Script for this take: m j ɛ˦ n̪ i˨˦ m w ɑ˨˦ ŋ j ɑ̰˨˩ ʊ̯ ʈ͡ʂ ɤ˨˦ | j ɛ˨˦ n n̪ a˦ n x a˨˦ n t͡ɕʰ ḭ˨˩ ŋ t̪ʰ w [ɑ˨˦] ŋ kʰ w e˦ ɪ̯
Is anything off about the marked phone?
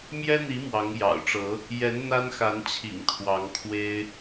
no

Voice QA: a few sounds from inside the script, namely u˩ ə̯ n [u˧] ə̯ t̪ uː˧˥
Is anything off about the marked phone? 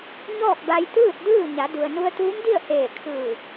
no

